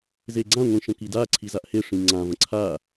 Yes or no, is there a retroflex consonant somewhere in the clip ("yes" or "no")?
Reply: yes